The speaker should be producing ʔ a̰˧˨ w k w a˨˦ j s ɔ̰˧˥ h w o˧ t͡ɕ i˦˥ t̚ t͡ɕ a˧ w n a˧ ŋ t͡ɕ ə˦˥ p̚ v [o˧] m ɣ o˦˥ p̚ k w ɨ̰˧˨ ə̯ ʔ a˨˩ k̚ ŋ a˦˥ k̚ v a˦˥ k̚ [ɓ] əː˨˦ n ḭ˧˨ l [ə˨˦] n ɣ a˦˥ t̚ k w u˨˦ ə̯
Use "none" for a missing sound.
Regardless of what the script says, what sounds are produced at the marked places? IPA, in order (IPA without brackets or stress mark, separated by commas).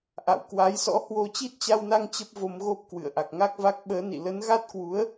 o˧, ɓ, ə˨˦